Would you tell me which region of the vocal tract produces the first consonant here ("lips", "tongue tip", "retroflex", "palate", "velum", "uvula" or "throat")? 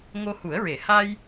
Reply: velum